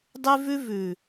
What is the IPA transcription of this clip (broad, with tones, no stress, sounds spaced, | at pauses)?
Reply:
dˤ ʉ˦ v ʉ˦ v ʉ˨